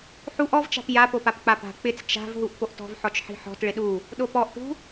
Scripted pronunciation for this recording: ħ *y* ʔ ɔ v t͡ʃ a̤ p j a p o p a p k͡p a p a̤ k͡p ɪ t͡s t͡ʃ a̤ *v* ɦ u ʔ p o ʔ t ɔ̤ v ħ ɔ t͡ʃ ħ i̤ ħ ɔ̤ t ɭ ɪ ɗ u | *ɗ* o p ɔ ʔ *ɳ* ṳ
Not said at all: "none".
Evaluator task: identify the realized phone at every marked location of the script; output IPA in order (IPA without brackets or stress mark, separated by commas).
u, v, ɗ, ʈ